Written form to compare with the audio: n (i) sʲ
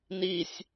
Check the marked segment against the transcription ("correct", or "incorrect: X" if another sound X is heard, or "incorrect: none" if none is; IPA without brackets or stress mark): correct